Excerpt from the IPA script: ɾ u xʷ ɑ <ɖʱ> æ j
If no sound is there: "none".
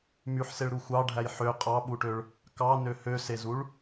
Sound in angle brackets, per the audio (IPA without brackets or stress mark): ɖʱ